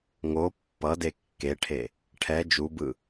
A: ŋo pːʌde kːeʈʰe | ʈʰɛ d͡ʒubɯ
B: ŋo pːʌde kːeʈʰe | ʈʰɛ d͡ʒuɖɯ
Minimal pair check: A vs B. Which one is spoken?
A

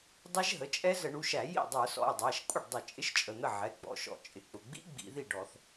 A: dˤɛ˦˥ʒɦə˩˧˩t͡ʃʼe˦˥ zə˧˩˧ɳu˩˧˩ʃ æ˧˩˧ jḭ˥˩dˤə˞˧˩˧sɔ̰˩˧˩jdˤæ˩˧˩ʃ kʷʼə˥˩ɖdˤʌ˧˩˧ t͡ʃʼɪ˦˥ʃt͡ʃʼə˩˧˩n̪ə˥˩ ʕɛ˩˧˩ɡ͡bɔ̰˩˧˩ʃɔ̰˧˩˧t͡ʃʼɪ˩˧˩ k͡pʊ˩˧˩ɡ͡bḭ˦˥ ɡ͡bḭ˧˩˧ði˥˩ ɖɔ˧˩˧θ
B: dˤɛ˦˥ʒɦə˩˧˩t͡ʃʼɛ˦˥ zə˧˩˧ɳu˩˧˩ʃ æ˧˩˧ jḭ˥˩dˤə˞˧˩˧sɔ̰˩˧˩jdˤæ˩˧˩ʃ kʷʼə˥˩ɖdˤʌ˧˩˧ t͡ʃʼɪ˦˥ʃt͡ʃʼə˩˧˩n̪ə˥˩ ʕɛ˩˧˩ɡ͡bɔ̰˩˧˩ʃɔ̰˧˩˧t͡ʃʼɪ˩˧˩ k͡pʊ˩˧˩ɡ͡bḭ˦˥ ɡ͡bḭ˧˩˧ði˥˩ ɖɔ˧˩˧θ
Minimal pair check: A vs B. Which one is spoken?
B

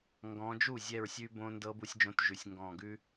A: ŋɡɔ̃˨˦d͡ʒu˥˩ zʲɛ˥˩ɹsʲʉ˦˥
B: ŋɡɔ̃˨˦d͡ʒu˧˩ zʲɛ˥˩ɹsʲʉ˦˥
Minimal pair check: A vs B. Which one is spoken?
A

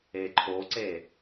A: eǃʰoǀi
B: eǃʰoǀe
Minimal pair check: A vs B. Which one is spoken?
B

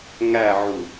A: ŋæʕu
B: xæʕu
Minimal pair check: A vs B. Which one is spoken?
A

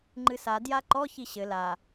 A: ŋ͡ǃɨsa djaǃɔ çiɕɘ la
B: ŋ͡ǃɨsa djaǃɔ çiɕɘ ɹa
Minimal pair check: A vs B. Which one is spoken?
A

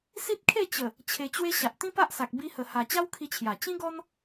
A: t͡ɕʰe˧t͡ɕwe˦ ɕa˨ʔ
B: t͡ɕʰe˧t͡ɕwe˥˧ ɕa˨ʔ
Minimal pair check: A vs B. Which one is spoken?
A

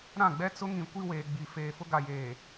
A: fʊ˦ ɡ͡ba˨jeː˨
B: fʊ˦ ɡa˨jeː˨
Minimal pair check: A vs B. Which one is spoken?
B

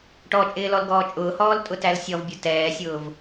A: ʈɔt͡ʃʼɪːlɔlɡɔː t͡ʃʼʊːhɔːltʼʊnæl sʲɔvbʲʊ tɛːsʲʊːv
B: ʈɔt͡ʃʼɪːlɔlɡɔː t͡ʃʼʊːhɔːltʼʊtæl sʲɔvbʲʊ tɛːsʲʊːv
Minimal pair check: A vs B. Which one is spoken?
B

